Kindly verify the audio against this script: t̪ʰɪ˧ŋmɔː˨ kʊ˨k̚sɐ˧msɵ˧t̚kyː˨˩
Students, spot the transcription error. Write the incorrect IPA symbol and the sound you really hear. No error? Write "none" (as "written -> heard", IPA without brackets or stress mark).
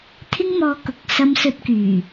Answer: none